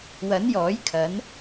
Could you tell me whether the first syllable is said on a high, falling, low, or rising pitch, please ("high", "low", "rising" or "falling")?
rising